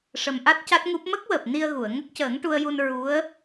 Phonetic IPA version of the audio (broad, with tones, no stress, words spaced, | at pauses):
ʂə˨˩mʔa˦˥t̚ ca˦˥t̚ŋu˦˥p̚ mə˦˥k̚wəː˨˩p̚ ni˧ə̯ ɣu˨˩˨ə̯ ŋə˦˥k̚cəː˨˩˦ŋʈu˧ə̯ju˧n ɹu˧˥ə̯